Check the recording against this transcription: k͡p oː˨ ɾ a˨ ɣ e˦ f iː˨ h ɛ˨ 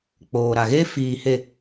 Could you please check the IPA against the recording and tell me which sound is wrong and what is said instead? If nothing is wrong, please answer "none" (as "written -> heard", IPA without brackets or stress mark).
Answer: ɛ˨ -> e˨